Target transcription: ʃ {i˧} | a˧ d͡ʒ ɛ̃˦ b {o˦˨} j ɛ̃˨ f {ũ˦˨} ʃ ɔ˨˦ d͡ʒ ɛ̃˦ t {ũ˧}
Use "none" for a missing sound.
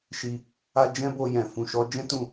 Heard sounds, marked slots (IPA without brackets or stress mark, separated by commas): i˧, o˧, ũ˨, ũ˦˨